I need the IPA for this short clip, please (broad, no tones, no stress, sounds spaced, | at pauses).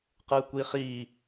q ɯ kʷ i χ i